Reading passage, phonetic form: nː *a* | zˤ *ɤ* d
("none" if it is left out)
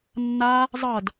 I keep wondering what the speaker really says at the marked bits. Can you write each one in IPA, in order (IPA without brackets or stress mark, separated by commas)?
a, ɤ